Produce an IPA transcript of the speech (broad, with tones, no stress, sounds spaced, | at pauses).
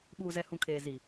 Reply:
ɓ uː˨ z ɛ˨ h ũ˨ kʰ eː˨ z i˨